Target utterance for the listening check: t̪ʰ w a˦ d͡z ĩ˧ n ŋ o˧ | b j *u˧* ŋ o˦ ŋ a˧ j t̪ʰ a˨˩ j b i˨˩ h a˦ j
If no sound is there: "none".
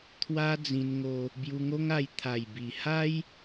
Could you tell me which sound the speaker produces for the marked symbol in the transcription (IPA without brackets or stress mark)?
u˧